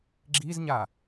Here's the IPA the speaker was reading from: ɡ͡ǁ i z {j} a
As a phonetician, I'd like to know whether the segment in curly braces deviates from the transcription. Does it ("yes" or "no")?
yes